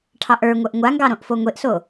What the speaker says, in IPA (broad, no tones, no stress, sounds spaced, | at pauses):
ʈʰ ɑ ʔ ə˞ ŋʷ œ ʔ ŋʷ a ŋ ɡ ɑ ɾ õ ʔ f o ŋʷ e ʔ s o